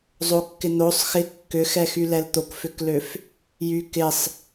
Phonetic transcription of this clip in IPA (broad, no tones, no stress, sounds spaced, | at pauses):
zˤ o kː ɪ n̪ o sˤ x ɪ kː ʏ x ɛ x y l ɛ l t̪ o k f ʏ k l ø f | j y k ɪ sˤ